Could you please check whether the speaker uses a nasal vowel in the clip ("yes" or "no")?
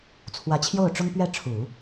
no